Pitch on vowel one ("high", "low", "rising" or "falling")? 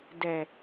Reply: low